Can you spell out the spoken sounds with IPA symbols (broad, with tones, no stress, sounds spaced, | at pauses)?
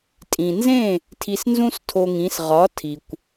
tʼ ĩ˩ n z ẽ˥˩ | tʰ i˧ s n z ũ˥ s tʰ o˧ ŋ ĩ˩˥ s ʁ ɒ˩˥ tʰ i˩ kʷ